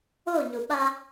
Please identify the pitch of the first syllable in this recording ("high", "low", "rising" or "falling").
falling